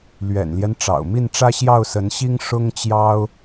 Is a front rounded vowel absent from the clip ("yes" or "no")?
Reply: yes